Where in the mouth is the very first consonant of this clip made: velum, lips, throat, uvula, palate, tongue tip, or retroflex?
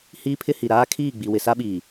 throat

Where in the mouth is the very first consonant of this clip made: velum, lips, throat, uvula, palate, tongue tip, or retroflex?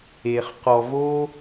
uvula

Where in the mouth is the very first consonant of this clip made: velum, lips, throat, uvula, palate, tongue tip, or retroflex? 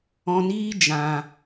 tongue tip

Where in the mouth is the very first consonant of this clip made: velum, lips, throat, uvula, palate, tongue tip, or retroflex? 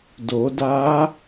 tongue tip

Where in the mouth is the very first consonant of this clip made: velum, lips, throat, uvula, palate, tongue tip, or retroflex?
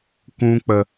velum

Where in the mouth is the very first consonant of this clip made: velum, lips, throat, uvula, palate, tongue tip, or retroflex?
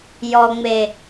palate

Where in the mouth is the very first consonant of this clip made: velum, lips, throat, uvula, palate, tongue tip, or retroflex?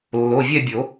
tongue tip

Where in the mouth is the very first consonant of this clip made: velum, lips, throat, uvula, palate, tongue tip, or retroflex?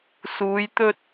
tongue tip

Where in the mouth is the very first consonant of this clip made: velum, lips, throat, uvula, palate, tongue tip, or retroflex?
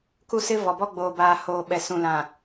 velum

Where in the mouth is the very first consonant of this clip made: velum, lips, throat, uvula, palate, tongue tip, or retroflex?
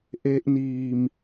throat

